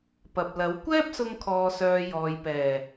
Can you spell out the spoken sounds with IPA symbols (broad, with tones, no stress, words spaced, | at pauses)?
pɐ˨p̚lɐ˨˥w kʷɛː˥p̚sʊ˧ŋkʰɔː˨sœː˨ jɔː˨jpɛː˨˩